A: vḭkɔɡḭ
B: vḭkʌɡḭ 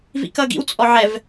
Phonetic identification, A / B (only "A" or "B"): B